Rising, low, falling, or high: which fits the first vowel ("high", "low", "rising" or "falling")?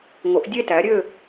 rising